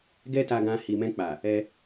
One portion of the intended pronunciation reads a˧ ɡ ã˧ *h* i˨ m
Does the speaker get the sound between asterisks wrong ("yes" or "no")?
no